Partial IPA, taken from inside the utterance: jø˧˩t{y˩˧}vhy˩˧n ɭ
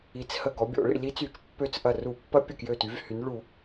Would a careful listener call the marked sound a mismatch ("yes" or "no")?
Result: no